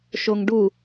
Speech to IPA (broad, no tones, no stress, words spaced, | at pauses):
ʃoŋɖu